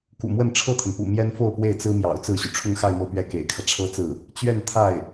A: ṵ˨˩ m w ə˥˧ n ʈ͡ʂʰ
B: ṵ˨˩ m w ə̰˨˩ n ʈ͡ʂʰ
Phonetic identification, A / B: A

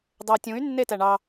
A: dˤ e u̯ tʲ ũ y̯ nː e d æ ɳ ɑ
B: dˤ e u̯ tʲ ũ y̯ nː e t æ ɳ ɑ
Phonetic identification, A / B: B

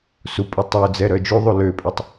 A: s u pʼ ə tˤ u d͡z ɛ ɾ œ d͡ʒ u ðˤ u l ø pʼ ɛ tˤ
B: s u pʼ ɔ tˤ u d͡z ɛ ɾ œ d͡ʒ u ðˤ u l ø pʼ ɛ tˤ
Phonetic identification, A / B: A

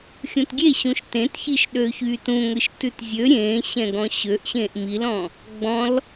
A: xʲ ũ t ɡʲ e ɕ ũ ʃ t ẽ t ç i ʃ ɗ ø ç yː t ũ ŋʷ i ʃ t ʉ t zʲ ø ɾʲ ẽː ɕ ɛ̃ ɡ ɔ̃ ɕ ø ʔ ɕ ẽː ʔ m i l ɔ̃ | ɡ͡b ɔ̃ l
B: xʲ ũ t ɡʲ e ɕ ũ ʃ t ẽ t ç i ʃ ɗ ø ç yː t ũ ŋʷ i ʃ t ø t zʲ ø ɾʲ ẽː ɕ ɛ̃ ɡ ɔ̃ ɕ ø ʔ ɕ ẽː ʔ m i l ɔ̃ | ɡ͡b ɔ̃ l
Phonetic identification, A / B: A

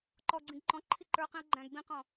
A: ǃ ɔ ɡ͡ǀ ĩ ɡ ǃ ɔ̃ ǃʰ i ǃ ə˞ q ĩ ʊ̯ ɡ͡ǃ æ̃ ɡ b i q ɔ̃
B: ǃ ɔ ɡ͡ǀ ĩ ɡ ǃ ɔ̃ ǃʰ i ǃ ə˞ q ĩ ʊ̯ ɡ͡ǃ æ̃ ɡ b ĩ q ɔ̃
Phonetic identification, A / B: B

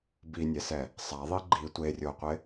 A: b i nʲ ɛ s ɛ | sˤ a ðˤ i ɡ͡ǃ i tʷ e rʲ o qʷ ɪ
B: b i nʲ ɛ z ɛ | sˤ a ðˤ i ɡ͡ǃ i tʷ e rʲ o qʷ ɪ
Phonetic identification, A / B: A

